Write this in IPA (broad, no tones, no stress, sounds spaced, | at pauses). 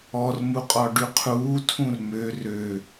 ɔ r m u qʼ ɔ ɖ y qʰ uː tʰ ũ r m ø r ø